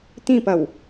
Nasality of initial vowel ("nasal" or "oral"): nasal